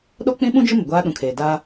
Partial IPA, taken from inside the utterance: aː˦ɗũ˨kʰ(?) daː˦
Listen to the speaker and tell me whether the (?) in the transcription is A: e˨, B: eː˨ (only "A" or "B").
B